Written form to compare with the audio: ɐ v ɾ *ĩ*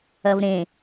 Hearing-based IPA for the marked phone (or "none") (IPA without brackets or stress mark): ẽ